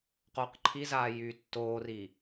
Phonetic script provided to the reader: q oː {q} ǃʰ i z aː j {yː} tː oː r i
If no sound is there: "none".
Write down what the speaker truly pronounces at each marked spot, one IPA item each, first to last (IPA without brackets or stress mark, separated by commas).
q, yː